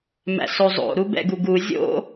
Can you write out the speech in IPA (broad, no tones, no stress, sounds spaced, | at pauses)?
m æ̰ s o zˤ o̰ ɾ u b ɛ̰ ɡ u ɡ u zʲ o̰